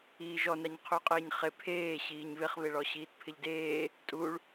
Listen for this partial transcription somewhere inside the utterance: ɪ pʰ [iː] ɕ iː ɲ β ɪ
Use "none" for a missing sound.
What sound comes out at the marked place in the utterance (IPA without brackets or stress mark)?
eː